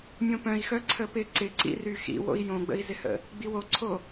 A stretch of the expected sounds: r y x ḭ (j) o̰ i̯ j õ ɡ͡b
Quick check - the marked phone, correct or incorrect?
incorrect